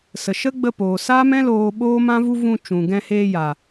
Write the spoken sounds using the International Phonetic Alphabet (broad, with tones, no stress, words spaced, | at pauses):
sə˨ʃə˦ ɡ͡bə˧poː˨saː˦mɛ̃˦ loː˧ɓoː˦mã˦vu˦ vũ˧t͡ʃũ˨ ɡɛ̃˧heː˧jaː˨